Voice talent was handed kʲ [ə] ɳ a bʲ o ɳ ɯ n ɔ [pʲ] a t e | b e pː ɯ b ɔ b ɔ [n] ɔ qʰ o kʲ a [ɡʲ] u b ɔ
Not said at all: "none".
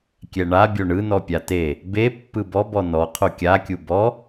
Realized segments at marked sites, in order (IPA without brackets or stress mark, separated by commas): ɛ, pʲ, n, kʲ